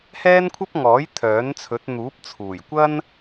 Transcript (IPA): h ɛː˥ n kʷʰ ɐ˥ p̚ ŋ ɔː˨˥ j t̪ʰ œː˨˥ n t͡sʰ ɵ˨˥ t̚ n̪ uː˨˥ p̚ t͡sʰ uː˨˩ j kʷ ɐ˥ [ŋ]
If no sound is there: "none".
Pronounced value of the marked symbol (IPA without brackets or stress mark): n